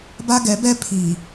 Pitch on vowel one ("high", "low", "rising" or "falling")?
high